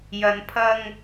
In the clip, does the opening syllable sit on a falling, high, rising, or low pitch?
low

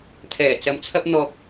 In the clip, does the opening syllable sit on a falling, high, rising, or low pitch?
low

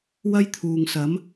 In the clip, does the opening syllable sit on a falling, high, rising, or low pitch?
high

